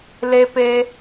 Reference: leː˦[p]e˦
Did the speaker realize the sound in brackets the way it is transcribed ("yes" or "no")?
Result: yes